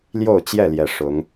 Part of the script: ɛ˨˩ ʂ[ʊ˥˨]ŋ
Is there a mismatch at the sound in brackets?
yes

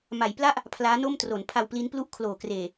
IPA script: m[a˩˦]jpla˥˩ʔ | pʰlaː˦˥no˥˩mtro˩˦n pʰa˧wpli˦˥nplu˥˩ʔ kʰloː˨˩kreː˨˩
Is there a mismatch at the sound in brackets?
no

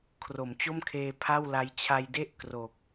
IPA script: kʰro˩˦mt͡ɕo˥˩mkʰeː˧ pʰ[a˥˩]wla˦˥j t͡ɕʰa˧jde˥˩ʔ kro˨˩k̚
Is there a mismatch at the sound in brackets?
no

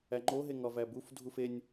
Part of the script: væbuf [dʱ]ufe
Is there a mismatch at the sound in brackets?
no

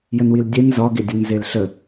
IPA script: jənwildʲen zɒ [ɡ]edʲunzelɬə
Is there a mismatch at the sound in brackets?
no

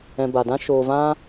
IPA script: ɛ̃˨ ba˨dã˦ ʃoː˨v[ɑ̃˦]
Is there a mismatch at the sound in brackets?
yes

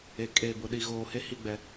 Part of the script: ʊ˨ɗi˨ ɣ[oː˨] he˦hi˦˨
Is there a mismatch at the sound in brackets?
no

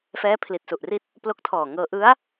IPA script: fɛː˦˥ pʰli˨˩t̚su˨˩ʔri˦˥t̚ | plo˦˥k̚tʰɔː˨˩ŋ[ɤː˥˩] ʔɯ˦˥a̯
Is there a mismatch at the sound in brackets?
yes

